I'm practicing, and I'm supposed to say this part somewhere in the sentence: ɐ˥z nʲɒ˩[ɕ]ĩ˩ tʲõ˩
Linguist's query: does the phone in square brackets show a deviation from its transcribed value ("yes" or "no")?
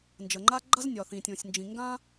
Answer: yes